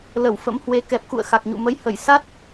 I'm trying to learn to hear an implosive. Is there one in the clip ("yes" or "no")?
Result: no